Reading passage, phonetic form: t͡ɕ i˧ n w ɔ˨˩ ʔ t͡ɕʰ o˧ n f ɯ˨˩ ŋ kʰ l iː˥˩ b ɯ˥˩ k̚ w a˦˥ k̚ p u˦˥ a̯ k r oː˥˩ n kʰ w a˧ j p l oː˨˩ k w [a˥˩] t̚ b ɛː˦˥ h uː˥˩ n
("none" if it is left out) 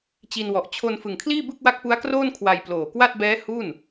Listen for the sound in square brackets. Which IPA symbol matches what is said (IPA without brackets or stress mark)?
a˥˩